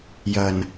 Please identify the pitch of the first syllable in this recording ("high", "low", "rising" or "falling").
low